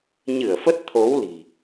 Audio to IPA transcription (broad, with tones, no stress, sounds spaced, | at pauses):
ɲ ɨ˧˩ ə̯ f ə˦˥ t̚ t̪ʰ o˨˦ w l i̤˨˩